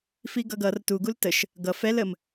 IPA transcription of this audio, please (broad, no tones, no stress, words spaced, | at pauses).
fiɡʌɡʌr tuɡul təʃ | ɡʌ fɛl əm